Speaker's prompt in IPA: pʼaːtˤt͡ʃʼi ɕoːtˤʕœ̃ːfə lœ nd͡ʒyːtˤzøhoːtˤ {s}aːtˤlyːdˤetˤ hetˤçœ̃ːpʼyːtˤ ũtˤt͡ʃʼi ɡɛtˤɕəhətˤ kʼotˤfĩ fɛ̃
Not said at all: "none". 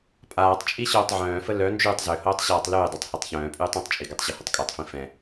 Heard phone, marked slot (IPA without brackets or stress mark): ɕ